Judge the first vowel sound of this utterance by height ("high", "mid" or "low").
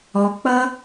mid